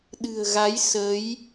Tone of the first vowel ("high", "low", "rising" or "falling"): low